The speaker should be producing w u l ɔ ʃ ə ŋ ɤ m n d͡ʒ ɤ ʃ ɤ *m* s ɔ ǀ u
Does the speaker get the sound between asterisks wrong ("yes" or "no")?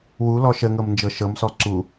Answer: no